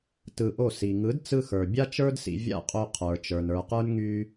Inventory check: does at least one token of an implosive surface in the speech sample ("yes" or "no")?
no